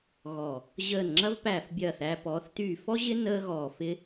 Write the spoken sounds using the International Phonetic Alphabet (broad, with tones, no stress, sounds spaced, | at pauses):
ɣ ɔ˨˩ | ʑ əː˨˩ n ŋ͡ǁ ɐ˧ v p æː˨˩ f bʲ ɐː˨˩ θ æ˧ p ɔː˩˧ θ t y˨˩ f ɔ˧ ʑ ɪ˧ n əː˧ ɣ ɔː˨˩ f ɪ˧